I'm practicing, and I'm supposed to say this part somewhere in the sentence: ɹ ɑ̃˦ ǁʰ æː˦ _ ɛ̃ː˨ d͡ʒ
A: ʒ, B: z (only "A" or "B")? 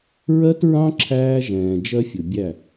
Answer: A